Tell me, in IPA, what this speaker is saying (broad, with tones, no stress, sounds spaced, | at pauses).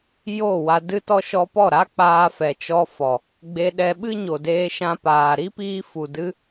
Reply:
j o˦˨ w a˧ d ɨ˦ t ɔ˦ ʃ ɔ˧ p ɔ˦˨ ɾ a˦ k͡p aː˧ f ɛ˨ t͡ʃ ɔ˧ f ɔ˨ | ɡ͡b e˧ ɗ ɛ˧ ɓ ɨ˦ ɲ o˨ d eː˧ ʃ ã˧ p aː˨ ɾ i˦ p iː˧ f u˨ d ɨ˧